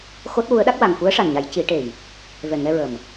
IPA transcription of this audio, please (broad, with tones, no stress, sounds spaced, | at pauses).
x o˦˥ t̚ w u˧˥ ə̯ ɗ a˦˥ k̚ w a˨˩ ŋ f u˧˥ ə̯ ʂ a˨˩ n ɲ a˨˩˦ j c i˨˩˦ ʈ e˨˩ j | v ɛ˨˩ ŋ ɛ˧ ɹ ə˨˩ m